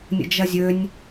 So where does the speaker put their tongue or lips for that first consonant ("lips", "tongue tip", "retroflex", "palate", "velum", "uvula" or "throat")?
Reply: tongue tip